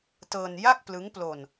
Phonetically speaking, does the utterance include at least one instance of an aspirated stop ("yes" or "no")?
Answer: no